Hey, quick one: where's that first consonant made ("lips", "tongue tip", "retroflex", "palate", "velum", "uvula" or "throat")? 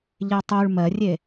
palate